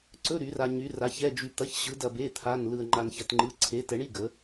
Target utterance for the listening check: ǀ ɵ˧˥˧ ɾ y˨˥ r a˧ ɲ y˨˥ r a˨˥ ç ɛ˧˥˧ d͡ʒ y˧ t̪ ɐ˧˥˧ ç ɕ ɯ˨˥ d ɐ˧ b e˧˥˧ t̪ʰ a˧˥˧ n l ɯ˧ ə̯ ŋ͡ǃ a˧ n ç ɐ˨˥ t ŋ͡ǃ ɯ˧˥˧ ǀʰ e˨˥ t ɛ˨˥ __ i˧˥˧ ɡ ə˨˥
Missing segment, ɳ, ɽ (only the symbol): ɳ